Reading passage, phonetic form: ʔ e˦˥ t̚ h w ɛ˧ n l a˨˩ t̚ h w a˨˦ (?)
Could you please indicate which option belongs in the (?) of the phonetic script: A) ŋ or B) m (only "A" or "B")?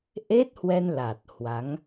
A